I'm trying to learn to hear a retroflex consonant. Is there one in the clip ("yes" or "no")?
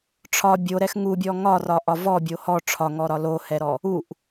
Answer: yes